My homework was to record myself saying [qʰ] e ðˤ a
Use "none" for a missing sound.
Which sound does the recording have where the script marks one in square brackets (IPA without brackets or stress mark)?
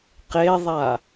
q